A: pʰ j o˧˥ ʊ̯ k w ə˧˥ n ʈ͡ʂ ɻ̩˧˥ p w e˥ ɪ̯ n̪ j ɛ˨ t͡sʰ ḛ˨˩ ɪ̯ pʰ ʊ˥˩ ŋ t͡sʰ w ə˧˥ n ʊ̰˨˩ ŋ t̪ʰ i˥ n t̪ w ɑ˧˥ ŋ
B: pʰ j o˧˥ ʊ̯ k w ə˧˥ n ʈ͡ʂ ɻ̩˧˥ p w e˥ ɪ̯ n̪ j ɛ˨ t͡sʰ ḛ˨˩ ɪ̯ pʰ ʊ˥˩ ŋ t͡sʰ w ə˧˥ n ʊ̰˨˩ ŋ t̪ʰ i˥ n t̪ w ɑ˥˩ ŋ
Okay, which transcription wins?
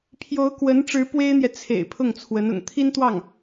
B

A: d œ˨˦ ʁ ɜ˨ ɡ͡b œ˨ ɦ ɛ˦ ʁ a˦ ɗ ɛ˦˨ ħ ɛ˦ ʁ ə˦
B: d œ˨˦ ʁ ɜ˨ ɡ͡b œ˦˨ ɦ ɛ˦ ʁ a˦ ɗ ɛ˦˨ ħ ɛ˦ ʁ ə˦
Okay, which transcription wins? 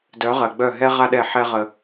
B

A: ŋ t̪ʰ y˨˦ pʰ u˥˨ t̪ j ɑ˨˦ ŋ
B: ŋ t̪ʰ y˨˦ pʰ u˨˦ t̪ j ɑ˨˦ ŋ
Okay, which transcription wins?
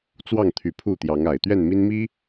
A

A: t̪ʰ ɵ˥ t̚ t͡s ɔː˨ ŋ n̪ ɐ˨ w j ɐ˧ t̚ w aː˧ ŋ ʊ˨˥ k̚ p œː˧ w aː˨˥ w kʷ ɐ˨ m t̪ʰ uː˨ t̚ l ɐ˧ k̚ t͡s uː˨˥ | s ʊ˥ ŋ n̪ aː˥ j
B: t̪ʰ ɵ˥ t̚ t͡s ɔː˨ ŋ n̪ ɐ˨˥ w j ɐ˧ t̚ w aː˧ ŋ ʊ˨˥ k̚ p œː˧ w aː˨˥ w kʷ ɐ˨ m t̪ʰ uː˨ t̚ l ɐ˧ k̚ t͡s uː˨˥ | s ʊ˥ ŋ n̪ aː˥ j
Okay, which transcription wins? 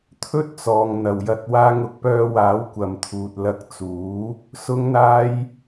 A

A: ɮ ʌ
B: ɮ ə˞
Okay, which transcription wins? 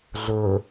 B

